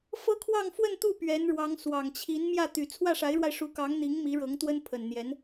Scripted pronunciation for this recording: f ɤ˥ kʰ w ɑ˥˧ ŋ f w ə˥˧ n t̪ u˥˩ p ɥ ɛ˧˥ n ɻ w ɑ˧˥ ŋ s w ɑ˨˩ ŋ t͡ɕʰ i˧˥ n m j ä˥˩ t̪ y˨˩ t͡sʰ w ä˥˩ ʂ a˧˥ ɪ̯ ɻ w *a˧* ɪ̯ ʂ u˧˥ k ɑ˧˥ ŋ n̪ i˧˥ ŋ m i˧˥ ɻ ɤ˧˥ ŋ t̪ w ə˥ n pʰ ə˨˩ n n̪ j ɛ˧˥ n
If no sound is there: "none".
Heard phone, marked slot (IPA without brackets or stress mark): a˧